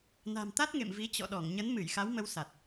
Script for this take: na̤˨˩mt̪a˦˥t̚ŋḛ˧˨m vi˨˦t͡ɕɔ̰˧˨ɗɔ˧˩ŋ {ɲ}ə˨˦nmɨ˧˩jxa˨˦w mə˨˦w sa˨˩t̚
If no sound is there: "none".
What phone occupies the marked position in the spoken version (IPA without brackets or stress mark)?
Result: ɲ